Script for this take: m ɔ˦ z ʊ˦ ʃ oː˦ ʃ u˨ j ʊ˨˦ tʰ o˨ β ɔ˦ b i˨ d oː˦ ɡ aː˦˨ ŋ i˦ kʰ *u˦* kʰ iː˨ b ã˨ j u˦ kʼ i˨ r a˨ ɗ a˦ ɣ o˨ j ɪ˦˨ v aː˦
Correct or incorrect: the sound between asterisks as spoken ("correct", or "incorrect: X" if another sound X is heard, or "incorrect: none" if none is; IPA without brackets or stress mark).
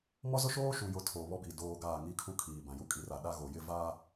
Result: correct